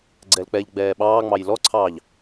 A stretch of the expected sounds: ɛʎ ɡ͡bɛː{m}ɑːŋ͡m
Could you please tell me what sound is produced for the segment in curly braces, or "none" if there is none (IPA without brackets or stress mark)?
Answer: ɓ